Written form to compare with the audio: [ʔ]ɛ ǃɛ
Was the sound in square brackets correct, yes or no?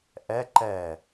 yes